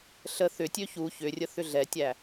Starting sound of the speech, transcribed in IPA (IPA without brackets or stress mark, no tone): ɬ